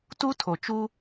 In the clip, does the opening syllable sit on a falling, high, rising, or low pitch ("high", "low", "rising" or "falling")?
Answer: high